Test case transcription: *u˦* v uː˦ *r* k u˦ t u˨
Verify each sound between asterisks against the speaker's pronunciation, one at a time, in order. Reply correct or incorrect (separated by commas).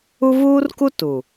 correct, correct